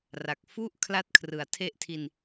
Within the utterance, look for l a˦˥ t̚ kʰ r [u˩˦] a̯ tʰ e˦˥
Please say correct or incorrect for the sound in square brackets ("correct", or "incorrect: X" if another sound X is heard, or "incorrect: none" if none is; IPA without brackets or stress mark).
incorrect: ɯ˩˦